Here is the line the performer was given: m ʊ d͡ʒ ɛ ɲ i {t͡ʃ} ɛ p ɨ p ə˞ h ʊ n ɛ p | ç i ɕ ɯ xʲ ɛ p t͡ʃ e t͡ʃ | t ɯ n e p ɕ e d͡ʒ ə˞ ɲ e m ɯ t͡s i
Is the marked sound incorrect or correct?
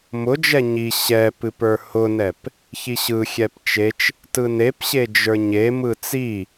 incorrect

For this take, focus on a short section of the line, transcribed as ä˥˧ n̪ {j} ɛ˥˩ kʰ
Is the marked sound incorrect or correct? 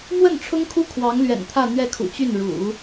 incorrect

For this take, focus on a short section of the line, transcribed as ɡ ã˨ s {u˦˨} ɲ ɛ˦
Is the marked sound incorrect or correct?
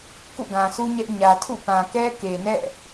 incorrect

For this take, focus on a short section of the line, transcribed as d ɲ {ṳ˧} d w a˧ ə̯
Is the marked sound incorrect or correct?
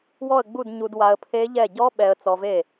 incorrect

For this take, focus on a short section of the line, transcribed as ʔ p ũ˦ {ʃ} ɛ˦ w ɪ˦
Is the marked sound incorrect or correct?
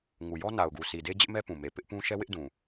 correct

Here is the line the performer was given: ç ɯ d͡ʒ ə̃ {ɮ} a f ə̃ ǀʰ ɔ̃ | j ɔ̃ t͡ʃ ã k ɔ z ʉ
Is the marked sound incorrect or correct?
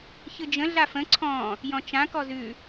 correct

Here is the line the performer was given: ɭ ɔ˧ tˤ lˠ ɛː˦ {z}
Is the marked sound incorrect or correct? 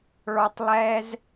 correct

